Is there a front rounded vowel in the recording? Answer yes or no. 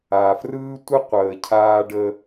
no